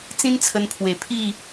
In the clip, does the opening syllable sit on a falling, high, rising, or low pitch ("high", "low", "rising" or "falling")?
high